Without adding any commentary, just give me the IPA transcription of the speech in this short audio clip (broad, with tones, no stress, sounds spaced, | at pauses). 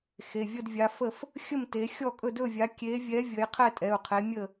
x e˩˧˩ vʲ ə˥˨ d vʲ a˨˦ f ə˥˨ f | xʲ ə˥˨ m t e˨˦ xʲ ɔ˥˨ kʼ ɵ˥˨ d ɵ˥˨ vʲ a˨˦ kʲ e˨˦ vʲ ɛ˨˦ vʲ ə˨˦ j qʰ ɛ˥˨ tʼ ɛ˩˧˩ u̯ qʰ e˨˦ mʲ ə˥˨